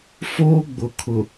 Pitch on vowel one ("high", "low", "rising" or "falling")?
high